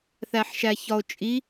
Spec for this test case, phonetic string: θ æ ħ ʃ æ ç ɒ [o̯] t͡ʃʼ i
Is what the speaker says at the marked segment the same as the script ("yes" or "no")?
yes